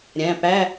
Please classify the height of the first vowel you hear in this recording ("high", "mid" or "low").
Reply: low